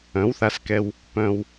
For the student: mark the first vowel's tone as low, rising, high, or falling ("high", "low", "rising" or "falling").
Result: rising